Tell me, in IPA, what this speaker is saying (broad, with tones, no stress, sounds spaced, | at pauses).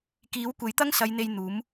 k iː˨˥ w kʷ e˨˥ j t̪ ɐ˥ ŋ s ɐ˨˧ j n̪ e˨ j n̪ uː˨˥ m